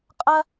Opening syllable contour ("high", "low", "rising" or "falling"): high